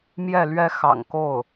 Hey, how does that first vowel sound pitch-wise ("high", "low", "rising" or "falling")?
falling